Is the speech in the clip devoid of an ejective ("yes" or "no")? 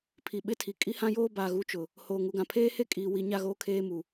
no